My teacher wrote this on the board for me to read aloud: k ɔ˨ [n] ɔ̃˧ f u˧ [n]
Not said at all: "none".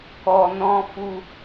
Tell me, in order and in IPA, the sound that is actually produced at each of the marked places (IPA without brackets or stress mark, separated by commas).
n, none